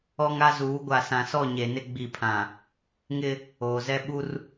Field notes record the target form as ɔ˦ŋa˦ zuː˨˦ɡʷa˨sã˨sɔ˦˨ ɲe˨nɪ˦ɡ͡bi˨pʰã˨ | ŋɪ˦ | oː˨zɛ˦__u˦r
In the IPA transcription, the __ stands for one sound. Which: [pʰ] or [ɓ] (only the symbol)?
ɓ